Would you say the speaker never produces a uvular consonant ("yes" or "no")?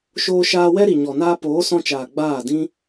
yes